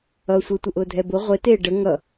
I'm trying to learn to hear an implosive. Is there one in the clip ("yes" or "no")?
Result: no